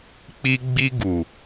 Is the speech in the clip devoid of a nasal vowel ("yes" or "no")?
yes